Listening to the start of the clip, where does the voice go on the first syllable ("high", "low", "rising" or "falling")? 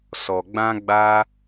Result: low